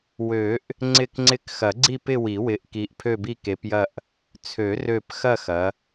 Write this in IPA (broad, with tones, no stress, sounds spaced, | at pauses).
w ø˨˩˦ ʔ | ŋ͡ǀ ɪ˦˨ k ŋ͡ǀ ɪ˦˨ k x ɐ˨˩˦ ɡ͡ǀ i˦˨ p ɪ˦˨ w i˨˩˦ w ɪ˨˦ ʔ k i˨˦ ʔ pʰ ø˦˨ b i˦˨ k e˨˦ p j ɐ˦˨ ʔ | t͡sʰ ø˨˩˦ r ø˦˨ p x ɐ˦˨ x ɐ˨˦